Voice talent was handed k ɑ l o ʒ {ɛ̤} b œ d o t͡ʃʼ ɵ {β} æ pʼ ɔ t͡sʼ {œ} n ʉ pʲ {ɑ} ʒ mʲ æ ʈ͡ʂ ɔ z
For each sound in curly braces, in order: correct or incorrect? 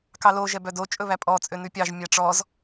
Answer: incorrect, correct, incorrect, correct

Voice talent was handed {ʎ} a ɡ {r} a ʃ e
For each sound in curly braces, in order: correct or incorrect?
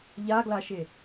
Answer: correct, incorrect

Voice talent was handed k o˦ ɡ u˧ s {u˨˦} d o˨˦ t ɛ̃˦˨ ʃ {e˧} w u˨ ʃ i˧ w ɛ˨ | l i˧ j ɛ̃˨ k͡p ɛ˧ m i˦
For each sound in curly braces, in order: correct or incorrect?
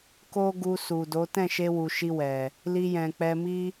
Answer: incorrect, correct

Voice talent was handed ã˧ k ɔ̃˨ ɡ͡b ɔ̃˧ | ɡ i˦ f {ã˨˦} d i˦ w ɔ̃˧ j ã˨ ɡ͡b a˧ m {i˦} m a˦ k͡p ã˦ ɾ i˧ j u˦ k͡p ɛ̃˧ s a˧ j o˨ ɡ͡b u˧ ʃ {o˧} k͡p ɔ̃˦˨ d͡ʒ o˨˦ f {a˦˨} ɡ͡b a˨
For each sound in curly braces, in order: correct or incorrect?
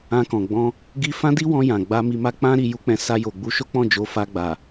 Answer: incorrect, incorrect, incorrect, incorrect

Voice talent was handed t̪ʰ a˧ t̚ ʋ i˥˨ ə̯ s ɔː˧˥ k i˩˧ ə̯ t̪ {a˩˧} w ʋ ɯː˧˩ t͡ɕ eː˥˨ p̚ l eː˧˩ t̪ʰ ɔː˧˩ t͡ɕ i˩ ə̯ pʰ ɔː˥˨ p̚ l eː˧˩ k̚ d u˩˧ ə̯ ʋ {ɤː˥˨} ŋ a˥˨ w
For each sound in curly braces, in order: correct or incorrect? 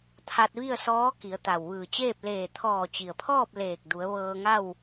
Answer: incorrect, incorrect

